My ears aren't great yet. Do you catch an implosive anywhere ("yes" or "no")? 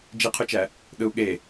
yes